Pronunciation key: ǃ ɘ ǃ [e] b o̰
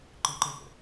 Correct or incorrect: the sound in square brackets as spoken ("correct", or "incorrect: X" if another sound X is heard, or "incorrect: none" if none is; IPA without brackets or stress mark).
correct